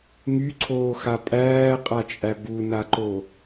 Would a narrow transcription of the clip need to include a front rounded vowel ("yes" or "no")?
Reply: yes